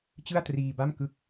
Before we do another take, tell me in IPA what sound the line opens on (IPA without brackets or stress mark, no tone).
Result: t͡ɕ